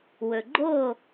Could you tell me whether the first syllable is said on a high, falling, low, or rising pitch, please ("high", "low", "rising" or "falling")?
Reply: low